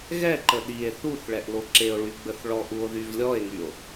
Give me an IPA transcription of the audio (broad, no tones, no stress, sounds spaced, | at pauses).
ɣ ɛ ǃ ə ɗ i e̯ θ u θ ɭ ɛ ʔ l o ǁ e o̯ ɭ y ɡ͡b ə θ ɭ ɔ ʔ u o̯ ð y v lʲ ɔ e̯ ŋ y o̯